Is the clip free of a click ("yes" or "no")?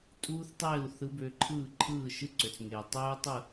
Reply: no